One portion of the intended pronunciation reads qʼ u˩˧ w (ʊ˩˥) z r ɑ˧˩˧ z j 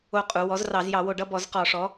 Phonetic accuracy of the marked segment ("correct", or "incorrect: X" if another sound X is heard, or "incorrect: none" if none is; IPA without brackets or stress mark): incorrect: ɔ˩˥